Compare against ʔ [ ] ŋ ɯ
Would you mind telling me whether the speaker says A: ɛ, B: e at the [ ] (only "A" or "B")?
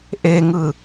B